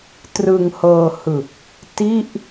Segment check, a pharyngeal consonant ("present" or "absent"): absent